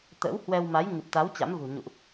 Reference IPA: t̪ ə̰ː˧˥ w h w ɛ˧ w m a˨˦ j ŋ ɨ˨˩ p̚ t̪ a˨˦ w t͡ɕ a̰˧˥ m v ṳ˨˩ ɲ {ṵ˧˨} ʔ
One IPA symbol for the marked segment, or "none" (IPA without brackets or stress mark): ṵ˧˨